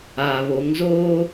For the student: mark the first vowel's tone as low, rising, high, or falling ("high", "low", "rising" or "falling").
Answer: low